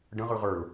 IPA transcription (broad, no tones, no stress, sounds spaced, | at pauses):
ɖ ə̃ ʁ ɯ ʁ ə˞ l